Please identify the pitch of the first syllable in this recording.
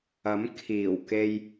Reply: rising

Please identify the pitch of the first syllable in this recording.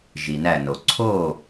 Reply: low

